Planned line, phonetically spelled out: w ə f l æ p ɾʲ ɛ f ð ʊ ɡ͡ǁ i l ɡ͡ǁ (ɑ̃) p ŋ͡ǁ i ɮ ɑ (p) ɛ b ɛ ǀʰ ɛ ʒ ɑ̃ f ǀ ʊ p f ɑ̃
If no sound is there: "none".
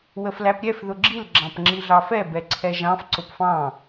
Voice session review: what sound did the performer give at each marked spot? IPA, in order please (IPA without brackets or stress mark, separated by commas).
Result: ɑ̃, f